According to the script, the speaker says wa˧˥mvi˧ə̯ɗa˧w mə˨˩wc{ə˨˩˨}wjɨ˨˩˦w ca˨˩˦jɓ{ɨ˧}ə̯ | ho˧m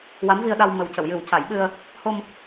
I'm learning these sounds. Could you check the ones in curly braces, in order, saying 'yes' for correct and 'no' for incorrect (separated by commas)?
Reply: yes, yes